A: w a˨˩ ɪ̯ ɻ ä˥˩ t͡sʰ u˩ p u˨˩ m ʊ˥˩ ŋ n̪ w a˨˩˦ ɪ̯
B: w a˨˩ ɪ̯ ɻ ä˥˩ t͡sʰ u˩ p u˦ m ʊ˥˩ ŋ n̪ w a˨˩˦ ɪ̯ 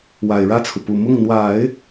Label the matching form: A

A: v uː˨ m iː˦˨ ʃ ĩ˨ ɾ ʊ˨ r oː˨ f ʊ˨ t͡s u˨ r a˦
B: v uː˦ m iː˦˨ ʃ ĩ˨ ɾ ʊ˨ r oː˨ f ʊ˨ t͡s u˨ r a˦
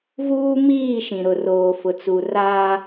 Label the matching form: B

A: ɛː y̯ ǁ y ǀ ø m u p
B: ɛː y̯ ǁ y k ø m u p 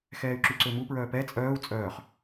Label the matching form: A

